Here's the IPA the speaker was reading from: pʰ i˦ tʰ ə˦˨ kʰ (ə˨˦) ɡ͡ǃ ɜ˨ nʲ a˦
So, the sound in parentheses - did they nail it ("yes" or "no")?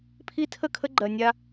no